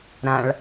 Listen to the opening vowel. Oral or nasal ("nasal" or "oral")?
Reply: nasal